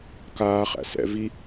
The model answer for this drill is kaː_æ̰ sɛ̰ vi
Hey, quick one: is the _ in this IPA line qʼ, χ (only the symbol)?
χ